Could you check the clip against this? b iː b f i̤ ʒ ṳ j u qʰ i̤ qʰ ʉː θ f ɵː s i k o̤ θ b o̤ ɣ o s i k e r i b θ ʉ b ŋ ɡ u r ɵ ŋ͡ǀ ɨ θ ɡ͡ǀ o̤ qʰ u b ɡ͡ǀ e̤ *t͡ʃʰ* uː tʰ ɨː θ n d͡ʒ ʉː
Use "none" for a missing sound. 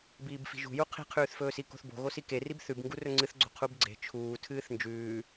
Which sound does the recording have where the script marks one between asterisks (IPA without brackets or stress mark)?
t͡ʃʰ